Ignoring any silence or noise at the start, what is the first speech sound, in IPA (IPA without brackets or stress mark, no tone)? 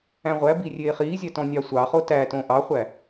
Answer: æ̃